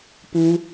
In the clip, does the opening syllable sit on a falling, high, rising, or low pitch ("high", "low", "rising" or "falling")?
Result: high